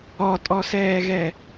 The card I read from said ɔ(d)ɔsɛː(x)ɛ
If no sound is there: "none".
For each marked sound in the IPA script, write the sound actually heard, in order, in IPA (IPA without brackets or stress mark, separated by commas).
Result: tʼ, ɣ